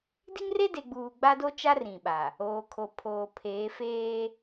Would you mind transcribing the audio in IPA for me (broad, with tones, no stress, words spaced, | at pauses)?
di˦ŋre˦de˨ɡ͡buː˨ ɡ͡ba˦do˦t͡ʃa˦r ĩ˨ɓa˨ | oː˨kʰo˨pʰoː˨ pʰeː˨˦feː˦